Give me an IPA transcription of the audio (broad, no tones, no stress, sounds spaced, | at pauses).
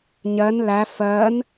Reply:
ɲ ɜ n l æ f ɜ n